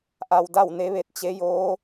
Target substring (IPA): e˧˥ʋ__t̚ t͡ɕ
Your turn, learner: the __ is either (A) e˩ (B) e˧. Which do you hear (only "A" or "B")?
B